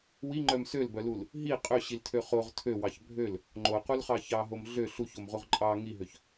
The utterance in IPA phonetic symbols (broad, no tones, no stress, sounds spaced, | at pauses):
w i ŋ͡ǃ œ m s ø l b œ l u l | ɦ i qʼ ø ɕ i l tʰ ø χ o ʁ tʰ ø w ɑ ç bʱ ø l | ŋ͡ǃ o q u l χ ɑ ç ɑ ɦ o m ɮ ø ɬ u ç o m ʁ u ʁ ǃʼ ɑ ŋ i ɦ ø ç